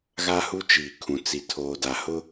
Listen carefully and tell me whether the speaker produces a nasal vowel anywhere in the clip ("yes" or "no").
yes